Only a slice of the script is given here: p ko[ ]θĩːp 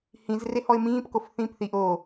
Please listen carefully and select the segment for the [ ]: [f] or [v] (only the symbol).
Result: f